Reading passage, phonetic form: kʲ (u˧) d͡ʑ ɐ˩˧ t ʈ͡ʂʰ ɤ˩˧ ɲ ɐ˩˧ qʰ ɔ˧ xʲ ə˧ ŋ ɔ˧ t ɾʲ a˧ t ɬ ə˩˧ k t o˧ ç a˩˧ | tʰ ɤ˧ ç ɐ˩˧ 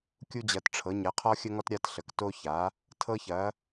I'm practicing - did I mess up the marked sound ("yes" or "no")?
no